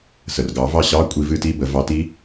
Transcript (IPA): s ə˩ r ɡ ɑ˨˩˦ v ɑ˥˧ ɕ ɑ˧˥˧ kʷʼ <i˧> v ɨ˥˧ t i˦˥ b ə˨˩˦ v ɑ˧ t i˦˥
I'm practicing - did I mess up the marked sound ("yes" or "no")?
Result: no